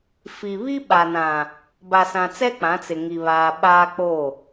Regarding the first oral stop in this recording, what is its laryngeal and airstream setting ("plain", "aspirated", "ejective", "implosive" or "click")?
implosive